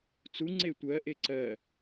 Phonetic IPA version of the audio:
t͡s u ŋ͡ǀ e tʷ ɜ ʔ e ǀ ɜ

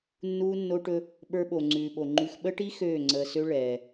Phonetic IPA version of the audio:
nː uː˦ nː o˦ ʈ ɵ˦ | ɓ ə˞˦ ɓ o˨ ŋ͡ǀ ʉː˨ ɓ o˨ ŋ͡ǃ ʉ˨ x ɓ ə˦ ʈ i˦ x øː˦˨ ŋ͡ǀ əː˨ s ø˦ ɭ ɛː˨

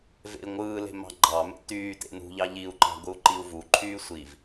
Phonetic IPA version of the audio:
v ḛ i̯ ŋʷ ɯː l e̤ m ɑ̤ ɡ͡ǃ ɑ m ḛ t yː t ḛ n ṳ ʎ ɑ ʎ i u̯ ǃ ɑ̤ ɡʷ ɯ u̯ ǃ i u̯ v u ǃʰ yː sʷ i v

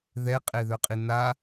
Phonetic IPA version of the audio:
ð ɛ qʼ e ð œ qʼ i n a

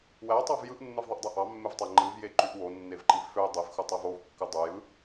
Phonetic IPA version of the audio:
w æ tˤ ɑ v j ɯ ʔ nː ɯ v ðˤ e ʔ dˤ u ʔ ɑ mː e v tˤ æ ŋ͡ǃ ɯ v j e ǃ y ʔ w o nː e v ǃ i v f ø dˤ i v x u tˤ o v o v kː ɯ dˤ u j ɯ

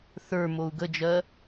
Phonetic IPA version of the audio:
θ ə˞ m o u̯ ɡ ə d͡ʒ ɜ

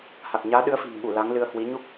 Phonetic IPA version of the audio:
h a˨˩ k̚ ɲ aː˨˦ ɗ ɨ˨˦ ə̯ f i̤˨˩ n ɓ u˧˩ l a˨˦ ŋ l ɨ˧ ə̯ h w i˨˦ ɲ u˦˥ k̚

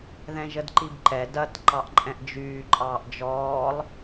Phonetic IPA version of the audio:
ð ɛ̃ ʒ ə d ǃ i b ǃ ɛ d ɐ t ǃ ɑ ʔ ǃʼ ɛ̃ ʔ d͡ʒ yː ǃʼ ɑː ʔ d͡ʒ ɔː lˠ

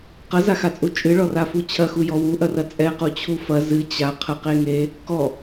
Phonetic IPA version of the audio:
q ɐ z a x a t͡sʼ u t͡ʃʼ ɨ ɭ ɔ r a f u t͡ɕʰ ɐ x u j ɔ w u ʔ ɐ r ɐ t͡sʼ ɛ q u t͡ɕʰ u f ɐ z ɨ t͡ɕ a qʰ ə q e ŋ e | k ɔ

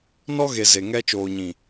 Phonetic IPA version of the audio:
n ɔ˦ ɣ e˨ z e˨ ŋ ɛ˦ t͡ʃ oː˨ ɲ ĩ˨

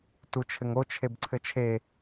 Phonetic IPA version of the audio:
t u t͡ʃʰ ɘ ŋ o t͡ʃʰ e b ǀʰ ɘ t͡ʃʰ e

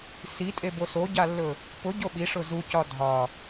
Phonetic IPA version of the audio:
s i tʼ e b o s o ɟ a lː ɵ | p ʊ ɟ o ɓ i ʂ ʊ z u c ɒ dʱ ɒ

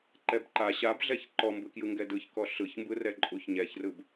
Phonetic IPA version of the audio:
ǃ ɛ b ǃ a ɕ a b ɮ ɛ ç ǃ ɔ m b ɯ k j ɯ ŋ ɡ ɛ d ɯ ç k ɔ ɬ ɯ ç m b ɯ r ɛ ǃʼ u ç ɲ ɛ ç r ɯ b

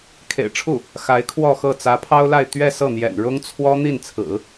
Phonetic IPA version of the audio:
kʰ ḛ˨˩ ɪ̯ ʈ͡ʂʰ u˥˩ | x a˧˥ ɪ̯ kʰ w ɔ˥˧ x ɤ˥˩ t͡s ä˧˥ pʰ ɑ˥ ʊ̯ l a˥˧ ɪ̯ t̪ ɥ ɛ˥˧ s ɤ˥˩ n̪ j ɛ̰˨˩ n ɻ ʊ˥ ŋ t͡sʰ w ɔ˥ n̪ i˥˩ n t͡sʰ ɹ̩˨˩˦

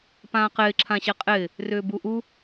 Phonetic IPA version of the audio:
p ãː q ɪː ǁʰ ã ɕ ɛ qʼ ɪː | r ʏː b u ʔ u

